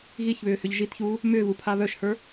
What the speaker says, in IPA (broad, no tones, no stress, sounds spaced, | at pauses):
ɣ i ç β ʏː h ʏ ʎ ʒ i t ç uː | m ʏː β u pʰ a β œ ʃ h ə˞